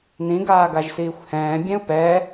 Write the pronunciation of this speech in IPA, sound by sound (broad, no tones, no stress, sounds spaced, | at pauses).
n ĩ ɡ aː ɡ a ʒ s iː xʷ h ɛ̃ː bʲ ɛ̃ u̯ p ɛ